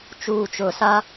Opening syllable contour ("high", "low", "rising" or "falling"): low